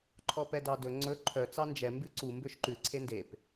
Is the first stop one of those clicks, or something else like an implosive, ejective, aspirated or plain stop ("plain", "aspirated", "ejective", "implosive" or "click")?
click